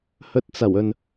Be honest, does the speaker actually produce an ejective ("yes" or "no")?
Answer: no